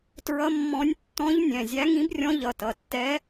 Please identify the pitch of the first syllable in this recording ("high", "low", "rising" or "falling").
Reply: rising